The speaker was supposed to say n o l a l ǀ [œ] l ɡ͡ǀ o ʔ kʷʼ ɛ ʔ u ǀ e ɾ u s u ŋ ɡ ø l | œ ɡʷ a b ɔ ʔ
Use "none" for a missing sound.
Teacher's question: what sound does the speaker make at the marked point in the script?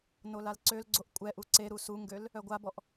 ø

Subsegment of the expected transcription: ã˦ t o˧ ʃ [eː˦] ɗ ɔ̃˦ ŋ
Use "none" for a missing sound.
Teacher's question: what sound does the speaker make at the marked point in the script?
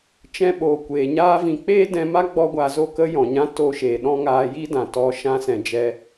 eː˨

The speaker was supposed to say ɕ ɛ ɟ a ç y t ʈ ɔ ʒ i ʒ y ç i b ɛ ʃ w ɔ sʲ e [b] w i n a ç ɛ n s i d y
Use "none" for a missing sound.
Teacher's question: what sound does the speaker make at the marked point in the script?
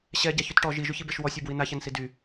b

